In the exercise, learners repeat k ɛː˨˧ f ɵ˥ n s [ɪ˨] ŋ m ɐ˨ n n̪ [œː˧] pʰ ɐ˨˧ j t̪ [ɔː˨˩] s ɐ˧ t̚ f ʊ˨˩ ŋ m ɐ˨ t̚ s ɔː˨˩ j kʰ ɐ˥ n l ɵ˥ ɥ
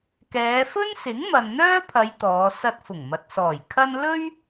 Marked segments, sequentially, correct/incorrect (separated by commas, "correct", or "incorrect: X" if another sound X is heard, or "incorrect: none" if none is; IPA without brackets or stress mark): incorrect: ɪ˨˥, incorrect: œː˥, incorrect: ɔː˨˧